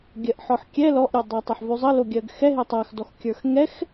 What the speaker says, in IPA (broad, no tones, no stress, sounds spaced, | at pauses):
ɡʲ ɜ ʔ ħ ɔ ħ kʲ ɛ l ɔ ʔ ɾʲ e dˤ ɜ tˤ ɛ ħ v ʉ zˤ ə l o ɡʲ ɜ ɡ x ɛ ɦ e tˤ a x d ɔ x kʲ ə˞ x ŋ ɛ x